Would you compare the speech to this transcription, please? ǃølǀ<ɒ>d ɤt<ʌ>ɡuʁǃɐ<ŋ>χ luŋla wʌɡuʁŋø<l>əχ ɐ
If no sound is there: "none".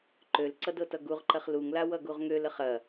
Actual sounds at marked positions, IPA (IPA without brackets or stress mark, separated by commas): ʌ, ʌ, none, l